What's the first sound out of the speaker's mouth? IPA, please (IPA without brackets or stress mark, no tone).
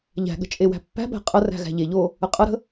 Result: ʎ